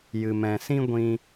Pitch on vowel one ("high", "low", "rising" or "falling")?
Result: low